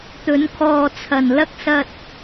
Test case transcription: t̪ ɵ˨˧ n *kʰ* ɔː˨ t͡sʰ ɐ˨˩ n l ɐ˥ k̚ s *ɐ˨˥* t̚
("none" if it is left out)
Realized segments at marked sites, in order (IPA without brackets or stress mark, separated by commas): kʰ, ɐ˧